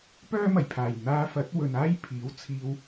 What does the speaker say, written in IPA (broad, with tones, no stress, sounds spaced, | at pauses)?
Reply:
p œː˥ m ɐ˨˩ j pʰ aː˨˩ j n̪ aː˧ f ɐ˨˥ t̚ w ɵ˨ n aː˥ j pʰ iː˨˥ w t͡sʰ iː˧ w